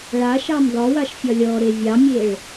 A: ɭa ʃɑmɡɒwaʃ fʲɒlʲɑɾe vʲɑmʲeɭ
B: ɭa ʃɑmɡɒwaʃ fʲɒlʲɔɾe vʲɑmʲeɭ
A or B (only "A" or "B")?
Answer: B